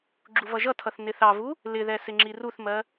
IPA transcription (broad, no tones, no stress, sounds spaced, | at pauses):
ɡ͡ǁ u v ʌ ʒ ʌ tʰ ʌ θ n ɪ θ ɑ v u | l ɪ ð ɛ s ɪ ŋ͡ǁ i r u θ m ɜ